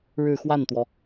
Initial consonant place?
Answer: retroflex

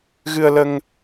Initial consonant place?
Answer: velar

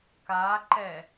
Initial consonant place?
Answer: velar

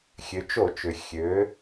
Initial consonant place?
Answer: velar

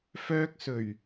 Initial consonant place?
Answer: labial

